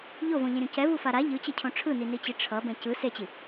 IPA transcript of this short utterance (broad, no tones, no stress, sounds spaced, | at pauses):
ʎ o v õ ʎ ɛ̃ ɾʲ õ c ɛ v u f a ɾ a ʎ ɯ t͡ɕ ʌ cʰ õ ʈ͡ʂʰ ɯ n i n i t͡ɕ i ʈ͡ʂʰ ʌ b ɛ̃ c ɯ s e t͡ɕ i